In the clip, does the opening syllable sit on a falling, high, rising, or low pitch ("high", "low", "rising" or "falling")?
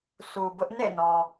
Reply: low